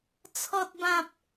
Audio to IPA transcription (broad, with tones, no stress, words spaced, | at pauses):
t͡sʰɔ˦t̚bã˦p̚